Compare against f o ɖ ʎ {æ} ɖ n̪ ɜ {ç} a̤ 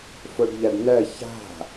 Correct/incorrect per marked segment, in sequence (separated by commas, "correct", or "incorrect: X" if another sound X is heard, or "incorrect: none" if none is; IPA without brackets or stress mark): incorrect: a, correct